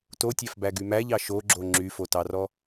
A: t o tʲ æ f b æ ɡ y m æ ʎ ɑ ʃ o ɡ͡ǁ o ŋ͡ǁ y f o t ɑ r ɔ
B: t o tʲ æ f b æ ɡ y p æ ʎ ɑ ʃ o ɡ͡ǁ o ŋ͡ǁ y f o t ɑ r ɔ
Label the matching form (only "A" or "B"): A